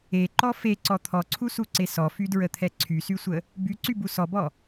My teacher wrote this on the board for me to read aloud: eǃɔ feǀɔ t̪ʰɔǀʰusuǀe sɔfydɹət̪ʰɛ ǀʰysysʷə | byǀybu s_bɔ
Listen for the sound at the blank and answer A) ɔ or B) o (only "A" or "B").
A